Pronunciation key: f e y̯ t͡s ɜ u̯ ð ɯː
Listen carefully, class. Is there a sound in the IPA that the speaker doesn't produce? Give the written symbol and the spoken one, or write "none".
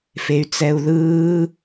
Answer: ɜ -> ɛ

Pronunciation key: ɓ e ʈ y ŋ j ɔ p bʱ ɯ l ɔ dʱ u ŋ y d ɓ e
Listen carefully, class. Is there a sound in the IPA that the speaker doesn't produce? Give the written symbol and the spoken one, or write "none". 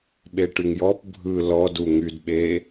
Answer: dʱ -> d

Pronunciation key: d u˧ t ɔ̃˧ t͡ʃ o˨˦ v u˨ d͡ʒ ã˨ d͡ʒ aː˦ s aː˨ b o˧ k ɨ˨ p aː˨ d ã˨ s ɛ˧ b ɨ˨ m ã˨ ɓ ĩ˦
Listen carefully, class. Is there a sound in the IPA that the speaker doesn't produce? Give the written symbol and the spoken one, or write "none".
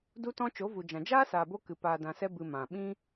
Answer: none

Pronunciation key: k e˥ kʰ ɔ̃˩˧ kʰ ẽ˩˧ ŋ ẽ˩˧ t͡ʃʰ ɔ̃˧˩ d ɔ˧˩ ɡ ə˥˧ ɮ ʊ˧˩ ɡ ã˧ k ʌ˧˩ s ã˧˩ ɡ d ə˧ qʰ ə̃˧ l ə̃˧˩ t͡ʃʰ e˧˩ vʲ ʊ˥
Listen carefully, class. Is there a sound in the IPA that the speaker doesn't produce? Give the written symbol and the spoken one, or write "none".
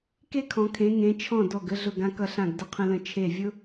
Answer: s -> ɬ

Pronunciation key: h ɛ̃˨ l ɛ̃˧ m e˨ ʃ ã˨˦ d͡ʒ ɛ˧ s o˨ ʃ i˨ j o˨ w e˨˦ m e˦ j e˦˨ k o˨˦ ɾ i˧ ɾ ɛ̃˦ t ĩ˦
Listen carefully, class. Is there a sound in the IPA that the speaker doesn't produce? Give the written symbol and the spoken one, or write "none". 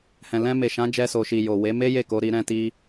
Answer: ĩ˦ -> i˦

